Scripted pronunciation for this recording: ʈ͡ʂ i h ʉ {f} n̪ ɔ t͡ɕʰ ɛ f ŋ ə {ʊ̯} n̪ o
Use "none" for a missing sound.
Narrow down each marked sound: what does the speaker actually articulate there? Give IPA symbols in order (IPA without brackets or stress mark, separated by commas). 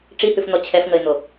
f, ɪ̯